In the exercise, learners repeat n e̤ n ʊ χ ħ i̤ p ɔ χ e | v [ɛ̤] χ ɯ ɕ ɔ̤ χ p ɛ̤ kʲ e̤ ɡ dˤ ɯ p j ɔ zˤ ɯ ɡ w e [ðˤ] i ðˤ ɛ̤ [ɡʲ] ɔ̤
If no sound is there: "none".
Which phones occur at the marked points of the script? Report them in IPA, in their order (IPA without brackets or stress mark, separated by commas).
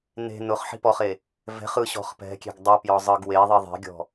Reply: ɛ̤, ðˤ, ɡʲ